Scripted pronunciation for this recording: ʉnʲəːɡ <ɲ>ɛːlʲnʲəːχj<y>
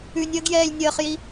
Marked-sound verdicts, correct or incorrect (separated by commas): incorrect, incorrect